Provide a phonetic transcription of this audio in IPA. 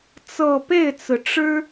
t͡sɤ˥˧ pe˥˩ɪ̯t͡sɹ̩˩ ʈ͡ʂɻ̩˥

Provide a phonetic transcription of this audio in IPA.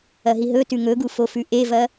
ɐɦiɦɵtʉ ŋɵɡu fofʉʔevɐ

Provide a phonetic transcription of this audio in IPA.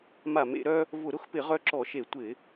ma˧˩˧mḛ˧˩˧ɾœ˦ | vʊ˧˩˧ɾʊ˦xpɪ˧˩˧ ʁœ˦ǁɔ˧˩˧ʃe˧˩˧ tʷɪ˧˩˧

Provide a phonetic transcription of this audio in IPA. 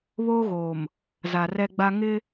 βoː˦ɣoː˨m | za˨rɛ˦ɡ͡ba˦ ŋɪ˦

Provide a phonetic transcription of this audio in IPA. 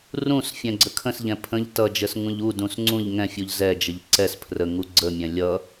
rũsfʲɛ̃ ɡ͡ǀəkʰə̃sʎɛ̃ pʰə̃ʎ tʌd͡ʒəs ŋũʎudũs ŋ͡ǀũʎ ŋɛ̃fʲuʎ zɛd͡ʒəʎ ǀɛs pʰrəŋu ɡ͡ǀəmʲɛ̃ lʲʌ

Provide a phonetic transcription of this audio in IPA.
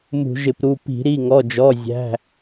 mṳ˧˩˧ʒɪ˧˩˧pɾu˩˧˩ pi̤˧˩˧ ɾi˩˧˩ŋɔ˩˧˩d͡ʒɔ˩˧˩zʲæ̤˩˧˩

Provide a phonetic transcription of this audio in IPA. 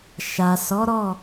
ʃa˨sɔ˨˦ɾɔ˦˨

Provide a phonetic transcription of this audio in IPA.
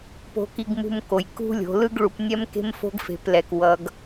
po̤˧ki˧ɡmṳ˧m ko˩jkṳ˥lʲo̤˩˧ lɯ˥ɡɭu˩˧pnʲɛ˥m ke̤˥mfo̤˥ɡfe̤˩˧plɛ˩k wʌ˩˧ɡ

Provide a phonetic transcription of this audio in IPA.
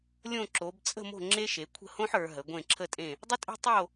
lʲõ˦˨ǁo˩˧b t͡sʼə̤˦˨mo̤˦˨ ŋ͡ǁe˦ʃe˩˧ kʷʰə̤˦˨hõ˦ħ ə˞˩˧ɦə˩˧ɡʷẽ˦˨ ǁʰə˦˨tʼẽ˦˨ | dˤə˦tʼe̤˦ tˤo˦˨

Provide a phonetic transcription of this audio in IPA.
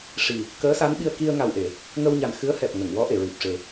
ʂi˨˩ | kəː˧˥sa˧˥nɓi˧ə̯ ki˧ə̯ŋa˨˩wʔe˨˩˨ | ŋə˧wɲa˨˩n xɨ˧˥ə̯hɛ˨˩p̚ ŋə˨˩˨ŋwɔ˧˥ʔe˨˩˨ ɹi˨˩p̚ʂe˨˩

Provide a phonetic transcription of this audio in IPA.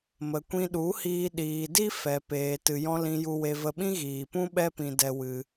mə˨kʷĩ˧ɗu˨˦hiː˧ ɗiː˨di˦ fɛ˨peː˨ tɨ˨jɔ̃˧ lĩ˨ju˨we˨ və˧ɓĩ˦ɣiː˨pũ˦ ɓɛ˦pĩ˧ dɛ˧wɨ˧

